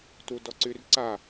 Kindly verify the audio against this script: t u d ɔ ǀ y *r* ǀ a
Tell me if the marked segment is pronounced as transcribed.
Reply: yes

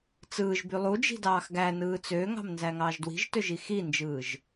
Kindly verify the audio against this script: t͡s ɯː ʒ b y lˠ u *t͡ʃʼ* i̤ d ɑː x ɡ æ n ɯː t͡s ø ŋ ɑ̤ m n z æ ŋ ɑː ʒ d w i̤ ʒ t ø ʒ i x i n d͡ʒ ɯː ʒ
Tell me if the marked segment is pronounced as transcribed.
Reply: no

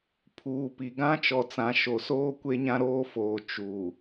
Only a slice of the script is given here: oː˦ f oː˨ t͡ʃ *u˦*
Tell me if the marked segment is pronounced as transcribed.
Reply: no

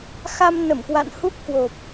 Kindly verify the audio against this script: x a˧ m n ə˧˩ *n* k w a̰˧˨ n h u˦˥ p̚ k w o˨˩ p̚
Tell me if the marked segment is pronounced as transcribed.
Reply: no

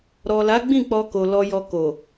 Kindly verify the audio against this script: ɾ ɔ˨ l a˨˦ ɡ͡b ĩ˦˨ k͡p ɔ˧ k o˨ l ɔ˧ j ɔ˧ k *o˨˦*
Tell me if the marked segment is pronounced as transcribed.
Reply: no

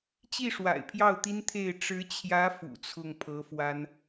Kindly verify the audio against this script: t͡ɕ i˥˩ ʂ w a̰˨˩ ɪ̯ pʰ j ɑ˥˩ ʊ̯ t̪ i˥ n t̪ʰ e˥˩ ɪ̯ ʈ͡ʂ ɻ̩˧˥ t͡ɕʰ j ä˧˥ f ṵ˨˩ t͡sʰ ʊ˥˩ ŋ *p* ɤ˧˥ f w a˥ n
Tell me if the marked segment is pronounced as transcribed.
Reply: no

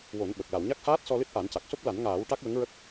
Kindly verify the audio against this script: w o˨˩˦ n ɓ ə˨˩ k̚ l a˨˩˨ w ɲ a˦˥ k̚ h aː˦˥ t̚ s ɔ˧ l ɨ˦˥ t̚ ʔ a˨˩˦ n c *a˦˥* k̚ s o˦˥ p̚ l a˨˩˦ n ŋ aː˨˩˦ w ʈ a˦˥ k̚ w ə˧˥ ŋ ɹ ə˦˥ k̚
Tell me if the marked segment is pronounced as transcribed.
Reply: no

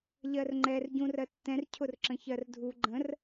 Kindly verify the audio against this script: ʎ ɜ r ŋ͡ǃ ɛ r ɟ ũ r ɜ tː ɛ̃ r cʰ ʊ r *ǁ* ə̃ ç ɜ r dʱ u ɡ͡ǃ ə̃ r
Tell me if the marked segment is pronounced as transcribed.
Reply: yes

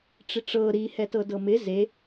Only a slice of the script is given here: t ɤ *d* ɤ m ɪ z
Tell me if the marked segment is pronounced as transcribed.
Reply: yes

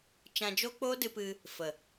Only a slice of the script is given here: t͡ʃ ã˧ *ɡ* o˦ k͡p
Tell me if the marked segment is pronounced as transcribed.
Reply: no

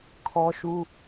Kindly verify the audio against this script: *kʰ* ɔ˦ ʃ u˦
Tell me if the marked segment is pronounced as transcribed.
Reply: yes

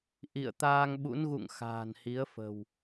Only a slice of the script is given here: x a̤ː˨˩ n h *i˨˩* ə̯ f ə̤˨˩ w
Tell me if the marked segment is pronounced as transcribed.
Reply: no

